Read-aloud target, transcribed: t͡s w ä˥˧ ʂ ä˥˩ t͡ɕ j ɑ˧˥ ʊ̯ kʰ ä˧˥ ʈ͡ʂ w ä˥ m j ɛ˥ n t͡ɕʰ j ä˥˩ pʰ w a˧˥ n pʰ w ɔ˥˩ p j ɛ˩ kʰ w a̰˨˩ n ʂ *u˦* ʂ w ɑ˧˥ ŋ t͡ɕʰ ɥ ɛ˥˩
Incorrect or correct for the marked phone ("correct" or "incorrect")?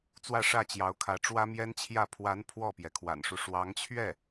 correct